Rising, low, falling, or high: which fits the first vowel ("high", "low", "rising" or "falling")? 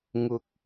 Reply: low